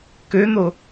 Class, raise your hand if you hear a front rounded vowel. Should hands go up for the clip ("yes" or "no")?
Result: yes